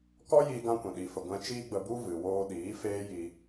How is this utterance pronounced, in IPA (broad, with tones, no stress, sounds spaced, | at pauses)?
k ɔ˦ j iː˧ ɡ ã˧ kʷ ɛ̃˨ ɗ i˨ f ə˨ ɡʷ ɛ̃˧ t͡ʃ iː˦ ɡ͡b ə˧ b u˦ v ɨ˨ w oː˧ ɗ iː˨˦ f eː˦ j i˧